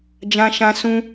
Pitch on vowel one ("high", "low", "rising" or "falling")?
high